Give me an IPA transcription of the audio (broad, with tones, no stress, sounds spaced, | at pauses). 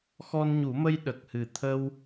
x ɔ˧ n ɲ u˨˩˦ m ə˧ j ɗ ə˨˩ k̚ h ɨ˨˩ t̪ʰ ə˧ w